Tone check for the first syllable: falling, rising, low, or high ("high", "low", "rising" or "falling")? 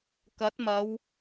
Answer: rising